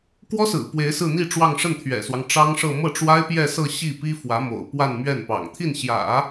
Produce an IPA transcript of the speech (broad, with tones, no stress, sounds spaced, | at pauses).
k w ɔ˥ s ɹ̩˨˩ p w e˧˥ ɪ̯ s ɹ̩˥˧ n̪ i˥˧ ʈ͡ʂ w ɑ˥˧ ŋ ʂ ə˥˩ n t̪ʰ ɥ ɛ̰˨˩ s w ɑ˦ ŋ ʈ͡ʂ ɑ˥ ŋ ʂ ɤ˥˧ m ɤ˥˩ ʈ͡ʂ w a˥ ɪ̯ p j ɛ˥˧ s ɤ˥˧ ɕ i˥˩ p i˥ f w ä˧˥ m o̰˨˩ ʊ̯ p w a˥˧ n m ɥ ɛ˥˩ n p ɑ̰˨˩ ŋ t̪ʰ i˥˩ n ɕ j ä̰˨˩˦